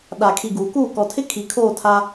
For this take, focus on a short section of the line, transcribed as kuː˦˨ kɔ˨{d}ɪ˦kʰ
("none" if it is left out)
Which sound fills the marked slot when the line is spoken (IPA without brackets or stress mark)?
tʰ